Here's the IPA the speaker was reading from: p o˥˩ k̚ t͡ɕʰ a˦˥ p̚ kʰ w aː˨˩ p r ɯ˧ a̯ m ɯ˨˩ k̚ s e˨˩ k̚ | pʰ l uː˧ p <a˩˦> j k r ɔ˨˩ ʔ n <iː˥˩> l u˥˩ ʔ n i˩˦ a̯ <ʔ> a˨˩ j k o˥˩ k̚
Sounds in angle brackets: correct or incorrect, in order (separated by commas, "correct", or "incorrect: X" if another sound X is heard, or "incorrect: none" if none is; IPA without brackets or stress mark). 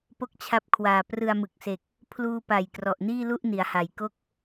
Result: incorrect: a˨˩, correct, incorrect: h